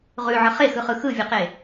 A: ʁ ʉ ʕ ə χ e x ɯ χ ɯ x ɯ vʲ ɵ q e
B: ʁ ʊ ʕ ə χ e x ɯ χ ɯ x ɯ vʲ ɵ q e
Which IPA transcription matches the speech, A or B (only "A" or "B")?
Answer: A